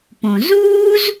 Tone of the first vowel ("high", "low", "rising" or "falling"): low